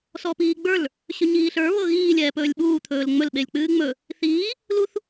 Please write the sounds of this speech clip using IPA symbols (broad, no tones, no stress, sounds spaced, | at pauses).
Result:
s ɔ p iː ɡ͡b ə˞ l | ɕ ɵ ɲ iː ɬ ə˞ β ɤ ɣ iː lʲ ɛː p ɵː lʲ ɓ uː t̪ʰ ɵː l ŋ͡m ɵ l ɓ e lʲ k͡p ɨː ŋ͡m ɵ | θ iː | l u θ